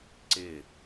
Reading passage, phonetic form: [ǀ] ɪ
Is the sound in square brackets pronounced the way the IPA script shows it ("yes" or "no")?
yes